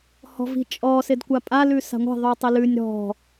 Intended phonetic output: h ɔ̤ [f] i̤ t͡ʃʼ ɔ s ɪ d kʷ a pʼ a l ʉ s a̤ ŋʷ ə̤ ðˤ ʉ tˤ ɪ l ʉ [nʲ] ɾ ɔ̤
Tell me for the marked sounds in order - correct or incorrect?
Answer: incorrect: v, correct

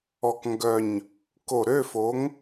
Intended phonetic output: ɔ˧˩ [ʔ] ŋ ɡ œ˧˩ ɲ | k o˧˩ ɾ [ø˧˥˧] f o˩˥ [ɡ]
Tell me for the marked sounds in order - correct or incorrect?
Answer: incorrect: k, correct, incorrect: ŋ

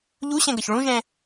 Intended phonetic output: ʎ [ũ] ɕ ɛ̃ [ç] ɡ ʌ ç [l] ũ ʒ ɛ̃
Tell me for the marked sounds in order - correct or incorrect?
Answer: incorrect: u, incorrect: none, incorrect: ɭ

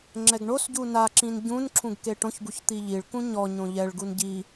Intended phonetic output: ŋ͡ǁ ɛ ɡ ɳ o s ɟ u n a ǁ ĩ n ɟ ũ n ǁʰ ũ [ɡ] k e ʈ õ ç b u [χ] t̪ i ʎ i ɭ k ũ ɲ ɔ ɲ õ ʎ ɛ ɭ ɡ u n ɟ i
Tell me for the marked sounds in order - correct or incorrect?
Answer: correct, incorrect: ç

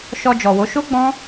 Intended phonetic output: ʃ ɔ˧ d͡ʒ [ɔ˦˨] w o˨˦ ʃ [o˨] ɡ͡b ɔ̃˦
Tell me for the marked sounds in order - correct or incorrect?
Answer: incorrect: ɔ˨, incorrect: o˦

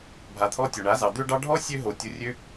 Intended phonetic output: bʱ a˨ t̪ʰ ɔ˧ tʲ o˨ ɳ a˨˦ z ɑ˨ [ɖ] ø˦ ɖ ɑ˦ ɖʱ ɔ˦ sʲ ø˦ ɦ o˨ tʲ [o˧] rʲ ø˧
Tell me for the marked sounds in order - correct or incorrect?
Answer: incorrect: d̪, correct

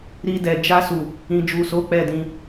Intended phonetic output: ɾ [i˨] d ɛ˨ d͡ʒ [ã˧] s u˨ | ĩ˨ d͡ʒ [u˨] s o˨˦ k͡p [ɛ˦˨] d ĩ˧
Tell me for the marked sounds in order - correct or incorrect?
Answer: incorrect: i˧, incorrect: a˧, correct, correct

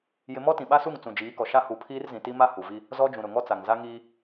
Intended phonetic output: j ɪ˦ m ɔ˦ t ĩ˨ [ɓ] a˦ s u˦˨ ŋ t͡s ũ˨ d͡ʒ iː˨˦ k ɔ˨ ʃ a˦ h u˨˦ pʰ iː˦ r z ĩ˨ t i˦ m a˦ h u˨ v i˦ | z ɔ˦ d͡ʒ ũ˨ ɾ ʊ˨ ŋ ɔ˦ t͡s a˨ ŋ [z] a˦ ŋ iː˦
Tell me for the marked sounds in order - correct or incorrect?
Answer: correct, correct

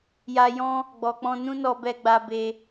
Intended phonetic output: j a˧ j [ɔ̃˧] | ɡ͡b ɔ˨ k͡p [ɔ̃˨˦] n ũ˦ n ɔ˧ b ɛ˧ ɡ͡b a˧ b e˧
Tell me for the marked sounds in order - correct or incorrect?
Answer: incorrect: ɔ̃˦, incorrect: ɔ̃˧

